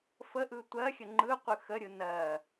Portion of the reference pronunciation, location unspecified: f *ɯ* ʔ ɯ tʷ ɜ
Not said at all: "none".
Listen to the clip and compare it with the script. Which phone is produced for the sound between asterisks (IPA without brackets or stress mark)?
ə